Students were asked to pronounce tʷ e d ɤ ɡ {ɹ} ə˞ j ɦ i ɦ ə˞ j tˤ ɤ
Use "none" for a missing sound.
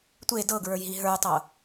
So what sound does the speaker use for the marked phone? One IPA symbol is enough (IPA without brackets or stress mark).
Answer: ɹ